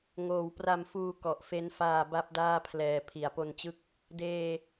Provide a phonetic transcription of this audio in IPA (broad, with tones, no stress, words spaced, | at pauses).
ŋoː˨˩wpra˧mfuː˧ kɔ˨˩ʔfe˦˥n faː˧ba˦˥p̚ daː˥˩pʰlɛː˧ pʰi˨˩a̯po˧nt͡ɕɯ˦˥k̚ | deː˧